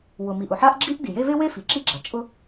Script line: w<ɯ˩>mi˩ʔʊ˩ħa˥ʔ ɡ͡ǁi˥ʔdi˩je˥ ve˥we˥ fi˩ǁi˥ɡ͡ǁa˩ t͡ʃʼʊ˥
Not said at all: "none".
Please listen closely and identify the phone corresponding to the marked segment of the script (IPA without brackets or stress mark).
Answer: ʊ˩